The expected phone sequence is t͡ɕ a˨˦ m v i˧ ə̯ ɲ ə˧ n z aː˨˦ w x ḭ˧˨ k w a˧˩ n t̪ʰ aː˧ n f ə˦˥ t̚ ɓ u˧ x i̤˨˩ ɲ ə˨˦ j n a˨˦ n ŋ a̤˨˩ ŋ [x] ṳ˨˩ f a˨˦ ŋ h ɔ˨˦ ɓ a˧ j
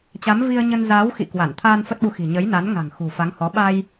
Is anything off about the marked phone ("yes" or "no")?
no